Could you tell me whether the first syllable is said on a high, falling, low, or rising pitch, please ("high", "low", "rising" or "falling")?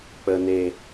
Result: low